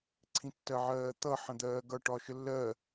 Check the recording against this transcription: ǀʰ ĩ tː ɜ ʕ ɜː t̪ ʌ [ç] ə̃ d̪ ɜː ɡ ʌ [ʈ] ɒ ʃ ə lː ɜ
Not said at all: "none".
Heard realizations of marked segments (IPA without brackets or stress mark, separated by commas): ħ, ʈ